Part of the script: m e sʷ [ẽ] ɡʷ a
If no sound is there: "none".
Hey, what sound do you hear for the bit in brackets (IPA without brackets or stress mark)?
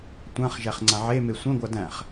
ẽ